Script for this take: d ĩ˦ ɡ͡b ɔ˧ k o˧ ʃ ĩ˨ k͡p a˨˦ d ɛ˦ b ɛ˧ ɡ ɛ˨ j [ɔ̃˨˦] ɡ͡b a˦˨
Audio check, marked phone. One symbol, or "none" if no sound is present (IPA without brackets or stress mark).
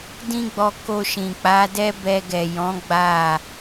ɔ̃˨˦